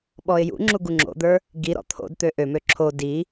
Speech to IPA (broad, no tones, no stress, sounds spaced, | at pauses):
ɓ ɔ ɪ̯ j ṵ ŋ͡ǁ u ɡ u ŋ͡ǁ o̰ d̪ ə˞ | ɡ i ɾ ɔ̰ t̪ʰ o̰ d t̪ ø ʔ ø m ø ǁʰ o d i